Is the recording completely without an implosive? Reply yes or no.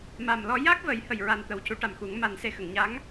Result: yes